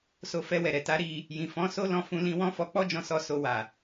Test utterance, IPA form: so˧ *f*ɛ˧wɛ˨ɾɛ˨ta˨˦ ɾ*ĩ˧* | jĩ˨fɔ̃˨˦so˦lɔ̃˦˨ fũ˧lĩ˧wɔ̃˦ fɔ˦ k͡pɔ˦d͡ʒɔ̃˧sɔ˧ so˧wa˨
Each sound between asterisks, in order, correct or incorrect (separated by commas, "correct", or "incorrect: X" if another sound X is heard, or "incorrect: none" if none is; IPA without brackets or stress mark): correct, incorrect: i˧